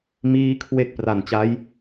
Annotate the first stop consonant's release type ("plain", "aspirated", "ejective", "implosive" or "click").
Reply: aspirated